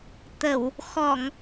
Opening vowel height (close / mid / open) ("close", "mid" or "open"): mid